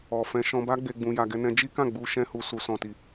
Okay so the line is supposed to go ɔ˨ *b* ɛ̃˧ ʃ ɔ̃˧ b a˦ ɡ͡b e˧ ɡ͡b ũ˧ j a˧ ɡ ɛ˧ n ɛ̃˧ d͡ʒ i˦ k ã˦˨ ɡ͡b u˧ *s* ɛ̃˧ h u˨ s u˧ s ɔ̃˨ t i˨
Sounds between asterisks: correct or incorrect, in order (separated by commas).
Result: incorrect, incorrect